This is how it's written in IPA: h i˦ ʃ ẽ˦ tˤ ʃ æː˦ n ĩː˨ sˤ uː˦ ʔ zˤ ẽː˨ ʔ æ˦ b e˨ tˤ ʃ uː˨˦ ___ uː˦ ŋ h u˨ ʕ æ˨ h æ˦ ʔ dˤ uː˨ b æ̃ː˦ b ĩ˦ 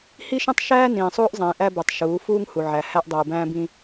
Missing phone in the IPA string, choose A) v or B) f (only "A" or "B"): B